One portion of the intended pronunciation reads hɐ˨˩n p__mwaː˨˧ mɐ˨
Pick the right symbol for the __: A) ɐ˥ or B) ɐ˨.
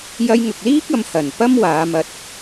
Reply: A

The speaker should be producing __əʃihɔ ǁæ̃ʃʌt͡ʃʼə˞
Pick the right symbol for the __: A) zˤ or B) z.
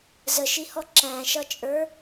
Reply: B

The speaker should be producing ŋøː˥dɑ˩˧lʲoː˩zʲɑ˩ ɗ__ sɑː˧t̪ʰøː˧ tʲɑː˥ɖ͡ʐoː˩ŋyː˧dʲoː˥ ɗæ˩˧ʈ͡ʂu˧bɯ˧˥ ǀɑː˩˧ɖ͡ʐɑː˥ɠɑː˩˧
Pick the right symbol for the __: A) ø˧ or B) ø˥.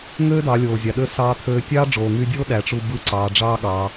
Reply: A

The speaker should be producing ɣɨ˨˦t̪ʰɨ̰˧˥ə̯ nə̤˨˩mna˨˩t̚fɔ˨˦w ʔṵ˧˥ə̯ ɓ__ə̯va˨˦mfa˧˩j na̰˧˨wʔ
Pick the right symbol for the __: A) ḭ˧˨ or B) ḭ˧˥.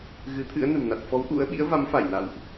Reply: B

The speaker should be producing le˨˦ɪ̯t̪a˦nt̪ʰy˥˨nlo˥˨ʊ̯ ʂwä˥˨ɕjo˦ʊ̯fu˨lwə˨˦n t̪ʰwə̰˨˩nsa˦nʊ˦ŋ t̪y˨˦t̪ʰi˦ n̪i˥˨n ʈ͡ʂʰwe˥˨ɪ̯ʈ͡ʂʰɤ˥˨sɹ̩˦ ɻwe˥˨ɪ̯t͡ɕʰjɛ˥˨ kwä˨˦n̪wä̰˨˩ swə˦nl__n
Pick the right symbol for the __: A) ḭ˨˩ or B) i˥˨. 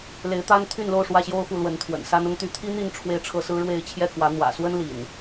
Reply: A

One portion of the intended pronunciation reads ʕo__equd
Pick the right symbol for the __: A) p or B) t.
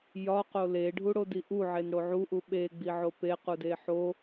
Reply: A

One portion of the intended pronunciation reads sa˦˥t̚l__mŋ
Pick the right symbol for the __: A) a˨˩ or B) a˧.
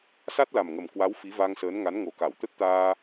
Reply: A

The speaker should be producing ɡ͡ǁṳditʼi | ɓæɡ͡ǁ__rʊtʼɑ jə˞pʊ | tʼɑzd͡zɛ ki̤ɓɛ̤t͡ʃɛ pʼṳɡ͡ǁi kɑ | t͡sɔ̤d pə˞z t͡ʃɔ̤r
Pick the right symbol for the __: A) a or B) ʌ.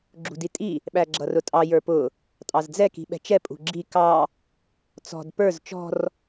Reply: B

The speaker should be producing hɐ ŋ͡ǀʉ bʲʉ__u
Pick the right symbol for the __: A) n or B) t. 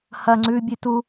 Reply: B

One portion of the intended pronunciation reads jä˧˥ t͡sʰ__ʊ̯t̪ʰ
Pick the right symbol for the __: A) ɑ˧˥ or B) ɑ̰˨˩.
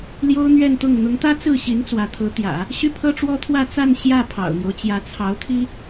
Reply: A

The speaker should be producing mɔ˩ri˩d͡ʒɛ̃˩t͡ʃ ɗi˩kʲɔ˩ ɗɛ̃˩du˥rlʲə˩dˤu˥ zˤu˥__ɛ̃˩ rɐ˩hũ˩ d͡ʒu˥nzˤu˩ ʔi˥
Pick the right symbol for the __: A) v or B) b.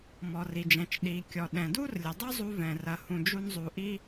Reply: A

